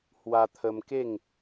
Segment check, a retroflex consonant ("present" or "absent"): absent